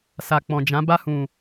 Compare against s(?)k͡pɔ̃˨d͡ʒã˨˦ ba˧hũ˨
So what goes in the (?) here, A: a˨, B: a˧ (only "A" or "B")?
A